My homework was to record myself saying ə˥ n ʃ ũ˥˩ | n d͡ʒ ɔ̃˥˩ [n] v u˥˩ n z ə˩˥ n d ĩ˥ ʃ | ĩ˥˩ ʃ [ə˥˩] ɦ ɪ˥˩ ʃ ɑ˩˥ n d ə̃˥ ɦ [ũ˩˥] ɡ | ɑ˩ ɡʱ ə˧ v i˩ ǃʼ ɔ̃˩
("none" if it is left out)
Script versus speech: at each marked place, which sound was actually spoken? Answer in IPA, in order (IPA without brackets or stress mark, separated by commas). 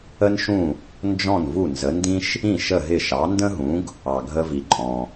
n, ə˥˩, ũ˩˥